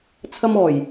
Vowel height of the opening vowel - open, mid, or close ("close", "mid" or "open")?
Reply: open